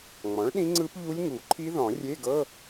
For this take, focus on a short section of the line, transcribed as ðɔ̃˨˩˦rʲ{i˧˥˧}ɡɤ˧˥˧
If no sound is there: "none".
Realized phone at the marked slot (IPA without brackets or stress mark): e˧˥˧